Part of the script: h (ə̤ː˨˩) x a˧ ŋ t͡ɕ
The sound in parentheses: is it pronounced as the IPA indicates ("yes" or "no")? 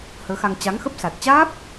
no